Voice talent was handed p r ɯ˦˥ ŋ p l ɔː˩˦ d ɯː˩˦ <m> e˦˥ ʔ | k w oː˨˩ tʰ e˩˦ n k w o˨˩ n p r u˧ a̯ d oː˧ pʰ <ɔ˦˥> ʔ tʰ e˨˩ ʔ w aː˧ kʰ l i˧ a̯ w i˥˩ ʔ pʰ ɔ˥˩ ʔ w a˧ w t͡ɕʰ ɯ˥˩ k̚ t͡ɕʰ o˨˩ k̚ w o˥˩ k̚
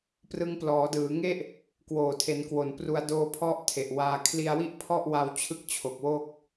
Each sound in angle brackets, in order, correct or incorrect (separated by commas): incorrect, correct